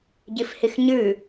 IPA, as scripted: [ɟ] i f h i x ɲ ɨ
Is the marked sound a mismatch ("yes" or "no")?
no